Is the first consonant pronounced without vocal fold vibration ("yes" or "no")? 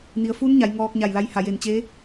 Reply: no